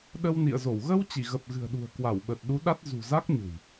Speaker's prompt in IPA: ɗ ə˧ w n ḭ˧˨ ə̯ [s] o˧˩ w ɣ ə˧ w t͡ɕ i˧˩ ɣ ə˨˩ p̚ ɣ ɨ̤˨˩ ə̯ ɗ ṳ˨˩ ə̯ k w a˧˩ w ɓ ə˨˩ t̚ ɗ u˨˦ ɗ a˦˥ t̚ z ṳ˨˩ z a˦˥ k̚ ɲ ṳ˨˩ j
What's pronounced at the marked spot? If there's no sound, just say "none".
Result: z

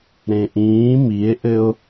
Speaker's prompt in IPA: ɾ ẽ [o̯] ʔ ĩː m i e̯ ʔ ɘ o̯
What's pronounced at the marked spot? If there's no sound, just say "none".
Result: none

